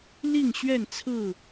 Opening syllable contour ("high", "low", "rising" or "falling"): falling